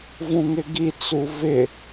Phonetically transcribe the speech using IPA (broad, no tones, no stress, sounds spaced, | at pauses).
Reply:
v ũ ŋ ɪ ɡ i t͡s u v ɪ